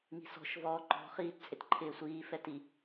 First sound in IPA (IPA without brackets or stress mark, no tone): ŋ